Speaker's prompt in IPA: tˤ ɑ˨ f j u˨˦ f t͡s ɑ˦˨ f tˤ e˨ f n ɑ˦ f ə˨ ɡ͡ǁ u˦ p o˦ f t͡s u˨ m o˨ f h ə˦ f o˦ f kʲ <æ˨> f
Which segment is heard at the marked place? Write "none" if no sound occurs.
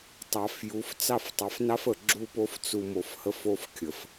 ə˨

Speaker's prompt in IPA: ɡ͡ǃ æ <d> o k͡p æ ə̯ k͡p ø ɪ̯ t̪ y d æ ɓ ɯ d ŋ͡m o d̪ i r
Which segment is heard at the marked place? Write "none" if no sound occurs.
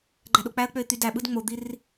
ɗ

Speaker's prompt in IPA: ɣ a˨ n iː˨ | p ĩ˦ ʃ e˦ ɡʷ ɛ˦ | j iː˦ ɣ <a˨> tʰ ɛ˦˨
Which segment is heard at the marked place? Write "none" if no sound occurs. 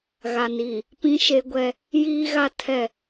a˦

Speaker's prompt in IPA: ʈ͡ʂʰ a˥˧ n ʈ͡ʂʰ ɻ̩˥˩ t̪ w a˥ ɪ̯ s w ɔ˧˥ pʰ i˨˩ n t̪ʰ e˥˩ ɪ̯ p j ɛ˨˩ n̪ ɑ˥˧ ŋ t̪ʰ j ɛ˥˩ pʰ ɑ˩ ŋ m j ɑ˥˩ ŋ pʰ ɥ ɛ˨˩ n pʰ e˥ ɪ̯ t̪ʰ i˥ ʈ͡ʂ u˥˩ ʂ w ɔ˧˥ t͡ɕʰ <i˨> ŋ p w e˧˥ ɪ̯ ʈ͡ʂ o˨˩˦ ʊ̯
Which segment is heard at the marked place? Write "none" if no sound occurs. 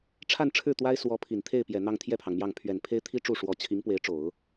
i˧˥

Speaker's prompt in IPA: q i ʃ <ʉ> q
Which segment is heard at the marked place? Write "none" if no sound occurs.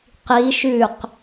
ʉ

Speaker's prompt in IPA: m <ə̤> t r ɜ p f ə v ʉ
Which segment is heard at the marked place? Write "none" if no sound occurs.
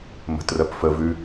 ə̤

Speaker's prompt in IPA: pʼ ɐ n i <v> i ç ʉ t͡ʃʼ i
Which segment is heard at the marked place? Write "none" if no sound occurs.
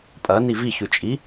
v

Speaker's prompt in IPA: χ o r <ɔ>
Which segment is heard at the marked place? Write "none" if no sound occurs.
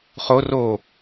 o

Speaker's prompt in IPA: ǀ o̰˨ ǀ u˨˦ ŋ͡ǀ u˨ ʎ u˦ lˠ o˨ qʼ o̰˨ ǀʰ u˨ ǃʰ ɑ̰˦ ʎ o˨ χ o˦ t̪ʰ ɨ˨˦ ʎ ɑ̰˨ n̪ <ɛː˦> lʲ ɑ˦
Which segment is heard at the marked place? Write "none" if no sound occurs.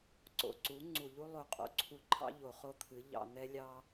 ɛ˦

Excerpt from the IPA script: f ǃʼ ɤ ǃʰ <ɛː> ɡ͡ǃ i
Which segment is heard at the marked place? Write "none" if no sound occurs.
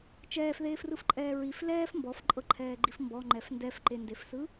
ɛː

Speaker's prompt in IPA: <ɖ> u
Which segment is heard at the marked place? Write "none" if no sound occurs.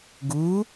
ɡ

